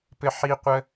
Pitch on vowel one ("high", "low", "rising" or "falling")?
high